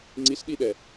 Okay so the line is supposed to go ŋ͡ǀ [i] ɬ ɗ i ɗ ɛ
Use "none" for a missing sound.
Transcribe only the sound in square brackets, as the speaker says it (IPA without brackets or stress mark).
i